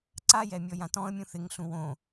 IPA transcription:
ǀ a j ɛ mʲ ɔ j ã t ɔ̃ ə̯ mʲ ũ θ ɪ ŋ ɬ ũ w õ

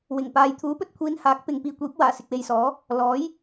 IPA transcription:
w ɪ˨˩ ŋ p aː˨ j t̪ʰ uː˨˥ p ɵ˧ t̚ kʷʰ iː˨˧ n h aː˨˥ k̚ p ɪ˨ ŋ p iː˨ kʷ iː˨˥ p̚ w aː˨˩ s ɪ˨ k̚ w e˨ j s ɔː˨˥ | l ɔː˨˥ j

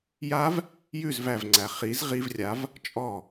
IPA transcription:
j a v | j ʉ z v æ v ŋ͡ǀ æ χ i z ʁ i v rʲ a v | t͡ʃʼ ɔ

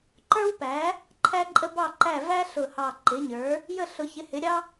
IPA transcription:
ǃ ə˞˥ w p æ˩˥ | ǃʰ æ˥ ǃʼ ə˥ b ɑ˥˨ ǃ æ˥˨ v æ˥ ɬ ʊ˧˩ h ɑ˧˩ ǃ ɪ˩˥ ɲ ə˞˩˥ | j ə˥˨ ɬ ʊ˨˩˦ ç ɪ˩˥ h ɪ˩˥ ɾʲ ɑ˥

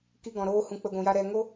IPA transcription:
k i˧ ɡ ɔ̃˨ ɾ oː˧ h ũ˨˦ k͡p ə˧ ɡʷ ũ˨ j a˦ ɾ ɛ˧ ŋ o˦

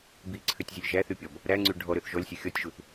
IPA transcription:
b i ǀʰ ø tʲ zʲ ɵ lʲ ʒ æ θ y pʲ ɔ b | ɾ æ ŋ͡ǀ y ɖʱ ɔ ɾ ø θ ʒ ɔ lʲ sʲ œ xʲ ɔ tʲ ʒ u θ

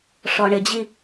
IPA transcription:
ʂ ɔ ɳ ɪ d͡ʑ i

